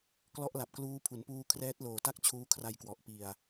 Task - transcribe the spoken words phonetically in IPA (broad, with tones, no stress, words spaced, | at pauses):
klɔ˦˥ʔ la˨˩p̚ kluː˦˥pʰu˩˦n puː˧ kʰrɛː˦˥t̚loː˨˩ta˥˩k̚ t͡ɕʰuː˦˥kʰra˧jkwɔ˨˩ʔ pi˨˩a̯